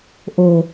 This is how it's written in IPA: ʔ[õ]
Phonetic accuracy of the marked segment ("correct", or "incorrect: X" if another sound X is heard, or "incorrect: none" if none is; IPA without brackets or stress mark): incorrect: o